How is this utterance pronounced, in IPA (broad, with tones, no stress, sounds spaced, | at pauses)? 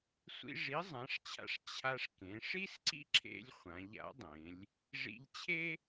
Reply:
sʷ ḭ˧ ʐ i˩˥ zˤ ã˩˧ ʂ t͡ɕʰ a̰˧ ʂ t͡ɕʰ a˧ ʂ k ẽ˩˧ ʂ i˥ s ǀ ḭ˥ ǁʰ ḛ˧ lʲ χʷ ã˩˧ ʎ a̰˩˥ dˤ ẽ˩˧ lʲ | ʐ ḭ˧ ʎ t͡ɕʰ e˥